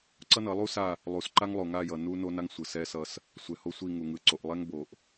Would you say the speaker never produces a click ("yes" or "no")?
no